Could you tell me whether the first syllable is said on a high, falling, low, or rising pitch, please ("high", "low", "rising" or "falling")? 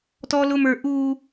high